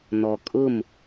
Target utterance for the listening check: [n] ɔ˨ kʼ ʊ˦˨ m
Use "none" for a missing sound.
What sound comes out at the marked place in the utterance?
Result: n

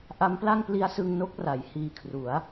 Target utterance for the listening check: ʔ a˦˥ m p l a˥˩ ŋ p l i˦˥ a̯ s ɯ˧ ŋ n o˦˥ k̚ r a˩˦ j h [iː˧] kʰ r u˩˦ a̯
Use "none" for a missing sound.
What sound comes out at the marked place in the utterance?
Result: iː˧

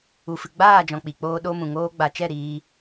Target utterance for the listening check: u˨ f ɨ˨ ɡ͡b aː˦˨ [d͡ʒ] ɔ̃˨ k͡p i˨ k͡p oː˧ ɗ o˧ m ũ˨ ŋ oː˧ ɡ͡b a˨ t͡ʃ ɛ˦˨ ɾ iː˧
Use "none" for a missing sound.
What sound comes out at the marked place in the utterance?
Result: d͡ʒ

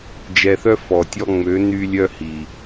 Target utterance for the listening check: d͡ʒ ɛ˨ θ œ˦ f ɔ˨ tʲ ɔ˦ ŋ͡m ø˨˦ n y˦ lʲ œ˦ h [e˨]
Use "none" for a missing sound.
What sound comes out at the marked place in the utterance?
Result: i˨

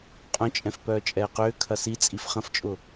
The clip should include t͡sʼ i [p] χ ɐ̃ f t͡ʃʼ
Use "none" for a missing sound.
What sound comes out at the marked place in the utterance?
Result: f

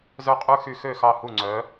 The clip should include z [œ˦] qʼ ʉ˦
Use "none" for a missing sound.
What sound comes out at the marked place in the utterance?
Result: œ˦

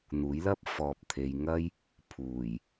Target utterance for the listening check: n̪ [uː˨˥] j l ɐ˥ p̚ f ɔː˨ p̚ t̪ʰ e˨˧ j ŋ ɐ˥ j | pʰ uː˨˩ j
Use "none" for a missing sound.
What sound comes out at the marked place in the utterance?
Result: uː˨˥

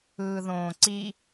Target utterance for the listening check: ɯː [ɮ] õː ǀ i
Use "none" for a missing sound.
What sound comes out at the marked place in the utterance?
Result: ð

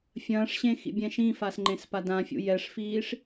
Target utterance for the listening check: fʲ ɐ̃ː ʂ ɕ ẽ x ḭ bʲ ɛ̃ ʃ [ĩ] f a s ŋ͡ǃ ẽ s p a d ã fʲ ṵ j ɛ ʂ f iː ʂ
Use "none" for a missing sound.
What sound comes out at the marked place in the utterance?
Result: ĩ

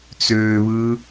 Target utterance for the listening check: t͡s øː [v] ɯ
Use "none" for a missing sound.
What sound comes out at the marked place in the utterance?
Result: β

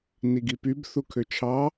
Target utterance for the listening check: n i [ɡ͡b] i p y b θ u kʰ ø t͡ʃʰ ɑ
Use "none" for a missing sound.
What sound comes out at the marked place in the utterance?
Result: ɡ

